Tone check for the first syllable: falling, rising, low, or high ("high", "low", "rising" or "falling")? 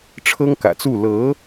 high